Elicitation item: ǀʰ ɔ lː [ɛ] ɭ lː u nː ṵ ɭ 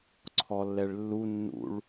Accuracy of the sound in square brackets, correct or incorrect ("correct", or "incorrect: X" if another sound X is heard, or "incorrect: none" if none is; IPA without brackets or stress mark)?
correct